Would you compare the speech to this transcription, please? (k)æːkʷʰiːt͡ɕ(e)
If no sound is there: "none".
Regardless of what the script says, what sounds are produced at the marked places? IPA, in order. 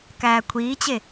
k, e

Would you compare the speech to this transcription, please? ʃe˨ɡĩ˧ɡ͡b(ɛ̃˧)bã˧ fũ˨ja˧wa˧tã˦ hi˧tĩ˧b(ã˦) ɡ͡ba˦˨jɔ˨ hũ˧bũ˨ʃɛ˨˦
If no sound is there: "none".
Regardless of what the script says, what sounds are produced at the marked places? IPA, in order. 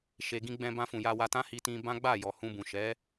ɛ̃˧, ã˦

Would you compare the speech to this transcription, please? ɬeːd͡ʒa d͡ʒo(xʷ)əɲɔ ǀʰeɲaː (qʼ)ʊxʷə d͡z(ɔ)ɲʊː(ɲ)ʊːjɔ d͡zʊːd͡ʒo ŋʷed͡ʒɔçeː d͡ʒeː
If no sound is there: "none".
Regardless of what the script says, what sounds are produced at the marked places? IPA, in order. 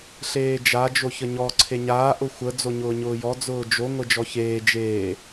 ç, ʔ, o, ɲ

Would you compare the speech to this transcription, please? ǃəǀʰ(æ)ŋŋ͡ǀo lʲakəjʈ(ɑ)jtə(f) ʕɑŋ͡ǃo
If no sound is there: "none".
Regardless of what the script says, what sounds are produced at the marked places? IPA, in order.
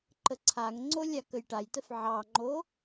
a, a, f

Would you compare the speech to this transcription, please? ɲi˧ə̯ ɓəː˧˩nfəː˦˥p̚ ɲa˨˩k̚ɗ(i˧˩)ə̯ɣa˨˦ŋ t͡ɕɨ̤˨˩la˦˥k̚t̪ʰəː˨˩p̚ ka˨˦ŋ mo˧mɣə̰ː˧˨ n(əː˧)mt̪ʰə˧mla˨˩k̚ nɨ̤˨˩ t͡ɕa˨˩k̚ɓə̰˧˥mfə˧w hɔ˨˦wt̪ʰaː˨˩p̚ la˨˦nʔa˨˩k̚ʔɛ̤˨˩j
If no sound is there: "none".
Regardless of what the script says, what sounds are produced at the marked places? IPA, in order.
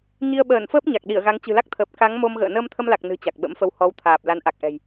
i˧˩, əː˧

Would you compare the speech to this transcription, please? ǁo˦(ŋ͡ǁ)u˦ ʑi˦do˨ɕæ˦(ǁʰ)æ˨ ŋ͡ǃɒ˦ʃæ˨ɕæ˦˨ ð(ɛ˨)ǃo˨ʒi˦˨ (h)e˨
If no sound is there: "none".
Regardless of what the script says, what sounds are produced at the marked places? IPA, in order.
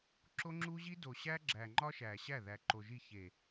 ŋ͡ǁ, ɡ͡ǁ, æ˨, ç

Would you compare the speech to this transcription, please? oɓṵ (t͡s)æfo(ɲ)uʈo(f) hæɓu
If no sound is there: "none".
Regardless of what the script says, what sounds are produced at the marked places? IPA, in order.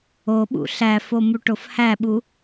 ɬ, m, f

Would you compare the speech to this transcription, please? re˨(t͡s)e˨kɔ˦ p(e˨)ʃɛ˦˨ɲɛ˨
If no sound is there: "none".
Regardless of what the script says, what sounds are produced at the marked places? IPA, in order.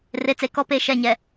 t͡s, e˨

